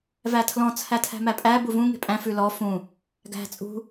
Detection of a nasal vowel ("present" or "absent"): present